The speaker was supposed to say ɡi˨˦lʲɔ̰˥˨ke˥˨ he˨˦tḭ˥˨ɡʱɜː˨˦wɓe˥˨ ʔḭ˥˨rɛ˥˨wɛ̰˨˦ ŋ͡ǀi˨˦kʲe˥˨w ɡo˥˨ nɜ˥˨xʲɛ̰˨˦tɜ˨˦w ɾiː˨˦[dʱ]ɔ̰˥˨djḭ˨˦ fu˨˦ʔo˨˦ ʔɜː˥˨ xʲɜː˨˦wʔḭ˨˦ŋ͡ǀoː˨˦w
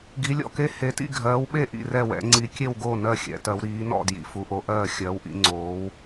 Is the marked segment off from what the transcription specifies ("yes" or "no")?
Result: yes